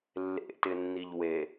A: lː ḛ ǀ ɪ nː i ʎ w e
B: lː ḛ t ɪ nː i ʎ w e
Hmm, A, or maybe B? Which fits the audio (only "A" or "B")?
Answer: B